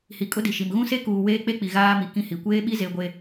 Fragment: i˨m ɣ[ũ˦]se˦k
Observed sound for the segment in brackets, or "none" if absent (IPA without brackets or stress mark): ũ˦